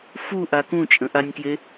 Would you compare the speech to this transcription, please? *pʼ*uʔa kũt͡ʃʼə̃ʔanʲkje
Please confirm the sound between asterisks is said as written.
no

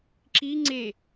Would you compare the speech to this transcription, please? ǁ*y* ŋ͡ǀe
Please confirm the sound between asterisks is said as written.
no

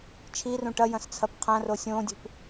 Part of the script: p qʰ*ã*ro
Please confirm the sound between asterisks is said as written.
yes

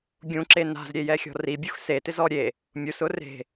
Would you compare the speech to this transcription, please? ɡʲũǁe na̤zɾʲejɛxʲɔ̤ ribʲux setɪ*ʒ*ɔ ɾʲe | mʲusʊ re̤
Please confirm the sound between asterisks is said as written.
no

